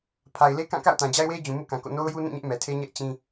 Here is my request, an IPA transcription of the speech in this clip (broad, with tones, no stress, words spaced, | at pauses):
pʰa˨ɪ̯le˦kã˦˨ ka̰˦˨ʊ̯tã˨d͡ʑa˦ɪ̯we˦ɪ̯ d͡ʑũ˨ mṵ˦˨kã˨ko̰˦˨ no˦ʊ̯ju˦nũ˦˨ɲɛ˦ʔ mɛ˨tʰe˦ɲɛ˦ʔ t͡ɕĩ˦